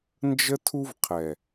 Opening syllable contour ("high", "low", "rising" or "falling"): high